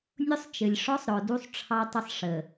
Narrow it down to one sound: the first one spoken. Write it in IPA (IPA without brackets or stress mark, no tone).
nʲ